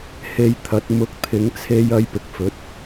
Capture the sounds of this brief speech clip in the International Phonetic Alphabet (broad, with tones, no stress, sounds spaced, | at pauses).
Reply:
h e˧ j t̪ʰ ɐ˨˥ t̚ m ʊ˨˥ k̚ t̪ʰ ɪ˨˧ ŋ t͡sʰ e˧ j ɐ˧ j p ɪ˨ k̚ f ɵ˨˥ t̚